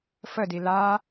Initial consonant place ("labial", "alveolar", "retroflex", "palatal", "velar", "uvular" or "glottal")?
labial